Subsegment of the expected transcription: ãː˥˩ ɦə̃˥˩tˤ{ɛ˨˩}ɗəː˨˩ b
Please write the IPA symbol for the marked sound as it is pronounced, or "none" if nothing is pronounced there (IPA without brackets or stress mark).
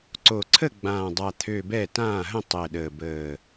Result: ɛ˨˩